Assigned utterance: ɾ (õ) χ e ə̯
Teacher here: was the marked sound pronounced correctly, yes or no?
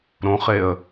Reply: yes